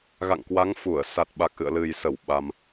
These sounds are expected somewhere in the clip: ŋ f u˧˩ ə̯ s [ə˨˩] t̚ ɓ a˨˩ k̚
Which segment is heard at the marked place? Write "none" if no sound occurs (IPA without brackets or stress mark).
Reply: a˨˩